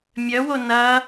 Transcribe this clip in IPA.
mʲœwo nɐ

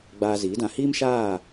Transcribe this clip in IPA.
ɡ͡baː˧ziː˨˦dã˧ hiː˦mʃaː˦˨

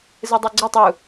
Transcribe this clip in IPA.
zɯdˤuɡ͡ǀetˤ u

